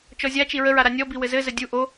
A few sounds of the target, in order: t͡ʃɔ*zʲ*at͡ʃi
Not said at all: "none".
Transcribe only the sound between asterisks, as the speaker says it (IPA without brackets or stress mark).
zʲ